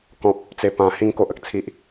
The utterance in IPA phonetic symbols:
kɔ̃˨p̚ | t͡se˨˩ pã˨˩hĩ˧ŋ ko˨ʔə˨k̚t͡sʰi˨ʔ

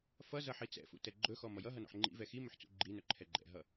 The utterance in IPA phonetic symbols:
fʌ zʌħit͡sɛ̰fṵ tɛɡ͡ǃɵxɔ mʌjʌɦʌ nɔ̰ħŋ͡ǃḭvɛ ximɵħ t͡sṵɡ͡ǃinɵ ǃʰɛɡ͡ǃɛ̰ɦʌ

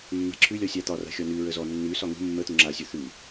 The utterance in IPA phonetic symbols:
mːa̤ǁʰʉlʲɔ sʲat̪ɒra̤ xʲɔnʉɹə zɔ nːʉsɒ ŋṳ mːət̪u ŋ͡ǁasʲo θʉ

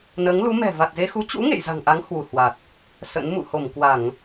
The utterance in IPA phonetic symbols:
nəː˨˦ŋlu˨˦mɛ̤˨˩ va˨˩t̚ze˧xu˨˦ t͡ɕṵ˧˥ ŋḛ˧˨j za̤˨˩ŋʔa˨˦ŋ hwu˧˩hwa˨˩t̚ | sə̰˧˥nmṵ˧˨ ho˧˩mkwa˧˩˨ŋ

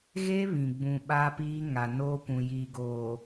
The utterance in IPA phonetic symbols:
ɣe˦βĩ˨ɡ͡bũ˨ ɓa˦piː˦ ŋa˨noː˦kʷũ˨ jiː˨ɡoː˨

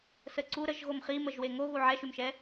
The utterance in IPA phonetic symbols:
səǀu ɾəʒ ɣomχiməʒwe ŋoɣu ʕɛʃymʃɛ

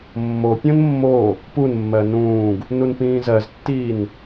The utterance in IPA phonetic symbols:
mːopʲõn mːo | punmːɜ nũːɡ | nunpĩːzɜztːiːn

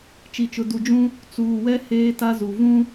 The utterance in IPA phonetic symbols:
t͡ʃi˨t͡ʃʊ˨ du˨d͡ʒũ˦ | t͡suː˨wɛ˦ heː˦ta˦zu˨ vũ˦

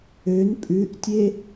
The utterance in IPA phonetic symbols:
øn pʼʉʔtʲe

